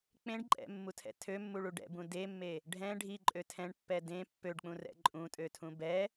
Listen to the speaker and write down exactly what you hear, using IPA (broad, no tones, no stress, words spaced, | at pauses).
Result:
k͡pẽɖǃʼɛ̰mːutʰɛ̰ tʰømːuɭu ɖɛ̰bũ demːe | ɖʱɛ̃ ɖʱiǃʼø tʰɛ̃ɳpːɛ dẽ pːøɖk͡pũrɛ̰ ǃʼũtʼøtʰũ bɛ